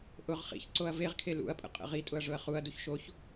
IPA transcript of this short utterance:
ʔ ʊ ʁ χ ḭ ç ǀ o ɐ̯ v e ʁ kʰ e l ṵ ɐ̯ pʼ ə̰ qʼ ə̰ ʁ i tʼ ʊ ɐ̯ ʐ ʊ ɐ̯ χ u ɐ̯ d u ç ʃ o ç

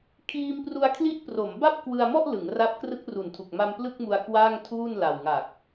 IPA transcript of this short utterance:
kʰ iː˧ m p r u˧ a̯ kʰ l i˦˥ ʔ p r o˩˦ m b a˥˩ p̚ k w ɯ˧ a̯ m ɔ˥˩ ʔ l ɯ˩˦ ŋ r a˦˥ p̚ k r ɯ˦˥ k̚ r u˨˩ n tʰ u˨˩ k̚ m a˧ m p l ɯ˥˩ k̚ m u˧ a̯ k w aː˥˩ ŋ tʰ uː˥˩ n l a˨˩ w ŋ a˨˩ k̚

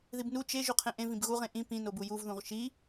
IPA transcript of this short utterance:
ð i b n u t͡ʃ e ʒ u qʰ ẽ ʔ ẽ v ĩ b ɣ u ʁ ẽ ʔ ĩ p ĩ n o b u j u v ð ũ ʁ ʃ i

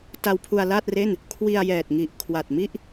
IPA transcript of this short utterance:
t a˧ w pʰ u˧ a̯ l aː˥˩ t̚ r e˥˩ n | kʰ w i˧ a̯ j ɛː˨˩ t̚ ŋ i˨˩ ʔ kʰ w a˨˩ t̚ m i˥˩ ʔ

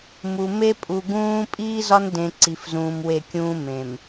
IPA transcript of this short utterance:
m u˨ m e˦ pʼ u˨ ɡ ũː˦ pʼ iː˦ z ɒ˦ n d ẽ˨ ǀ i˨ f z ũː˨ m w e˦˨ kʲ ũː˦ m ẽ˨ m

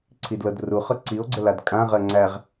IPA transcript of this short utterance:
ǀʰ i d l ɤ d r u χ ɤ ǀ i o̯ ɡ͡ǀ ə l a d kʼ ã ʁ ɜ ŋ͡ǀ æ ʁ

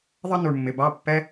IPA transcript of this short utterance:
ðˤ ʌ˦ n u˨ ɳ mː ɪ˨ b ɑ˦ pː ɛ˦

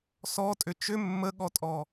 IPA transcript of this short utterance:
s ɔ tʼ ʏ t͡ʃ ʏ mː ə ɠ ɔ tʼ ɔ

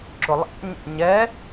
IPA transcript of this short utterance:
ǁ ʊ lˠ æ̰ ɲ ɛ̰ ɲ ɛ

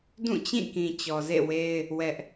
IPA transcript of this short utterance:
d ũ˦˨ t͡ɕ ĩ˦˨ k ĩ˨ t͡ɕ ɔ˨ z ḛ˦˨ w e˦ ɪ̯ | w ɛ˦ ʔ

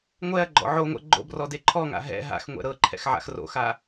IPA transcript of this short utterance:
ŋʷ ɛ ɐ̯ ɡ͡ǃ ɔ̰ ʕ o ŋʷ ɛ̰ ɡ͡ǃ o̰ b r ɔ d e ǃʰ ɔ ŋ a̰ ɦ ɛ̰ ɦ a̰ x ŋʷ ɛ̰ ɾ ɤ ǃʰ ɛ̰ x ʕ a̰ x r o̰ x a

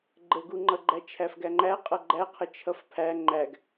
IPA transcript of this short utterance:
ɡ͡ǃ ə ɡ u ŋ͡ǃ ʌ ɡ͡ǃ æ t͡ʃʰ æ f ɡ æ ŋ͡ǃ æ qʼ ʌ ɡ͡ǃ æ qʰ ə t͡ʃʰ ʌ f pʰ æ ŋ͡ǃ æ ɡ

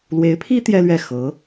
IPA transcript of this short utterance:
l w e˧˥ ɪ̯ pʰ i˥ t̪ j ɛ˥ l ɥ ɛ˥˩ x ɤ˧˥

